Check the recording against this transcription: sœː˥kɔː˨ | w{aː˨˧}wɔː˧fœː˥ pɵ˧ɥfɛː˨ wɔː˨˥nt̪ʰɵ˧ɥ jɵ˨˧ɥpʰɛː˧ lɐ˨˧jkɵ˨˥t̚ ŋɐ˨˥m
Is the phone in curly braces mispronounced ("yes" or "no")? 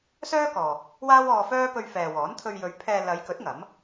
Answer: yes